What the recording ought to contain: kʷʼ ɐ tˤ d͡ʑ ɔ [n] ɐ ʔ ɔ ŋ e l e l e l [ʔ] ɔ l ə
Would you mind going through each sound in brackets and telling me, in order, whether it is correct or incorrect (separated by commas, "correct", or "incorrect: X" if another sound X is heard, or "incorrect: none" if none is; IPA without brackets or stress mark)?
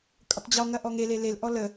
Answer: incorrect: ŋ, correct